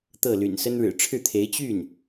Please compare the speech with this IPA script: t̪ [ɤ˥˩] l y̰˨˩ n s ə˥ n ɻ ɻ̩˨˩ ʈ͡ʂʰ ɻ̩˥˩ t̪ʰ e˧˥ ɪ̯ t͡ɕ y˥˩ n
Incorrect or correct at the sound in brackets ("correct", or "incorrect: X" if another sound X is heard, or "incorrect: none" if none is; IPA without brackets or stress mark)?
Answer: correct